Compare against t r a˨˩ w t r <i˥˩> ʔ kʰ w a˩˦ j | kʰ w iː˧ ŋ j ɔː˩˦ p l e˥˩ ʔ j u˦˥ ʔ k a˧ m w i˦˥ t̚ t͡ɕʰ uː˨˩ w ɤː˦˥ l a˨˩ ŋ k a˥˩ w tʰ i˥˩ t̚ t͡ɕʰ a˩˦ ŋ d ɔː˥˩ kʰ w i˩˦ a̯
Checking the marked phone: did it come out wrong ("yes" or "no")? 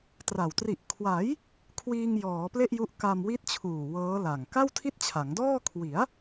yes